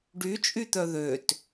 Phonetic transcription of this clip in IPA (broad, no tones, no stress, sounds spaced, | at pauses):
ɖ y t͡ʃʼ y t̪ œ ð ø t